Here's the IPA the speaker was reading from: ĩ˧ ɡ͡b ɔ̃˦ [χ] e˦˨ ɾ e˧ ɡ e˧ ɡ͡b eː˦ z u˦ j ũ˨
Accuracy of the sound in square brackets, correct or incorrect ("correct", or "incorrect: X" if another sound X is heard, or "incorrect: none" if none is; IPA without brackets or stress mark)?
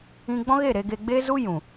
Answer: incorrect: ɣ